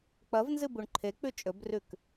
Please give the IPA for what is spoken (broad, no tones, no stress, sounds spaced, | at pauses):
k͡p ɐ v n z ɨ b u ɳ ǃʰ e k͡p ʉ t͡ʃʼ ɵ b r ʉ k